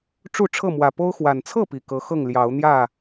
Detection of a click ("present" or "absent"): absent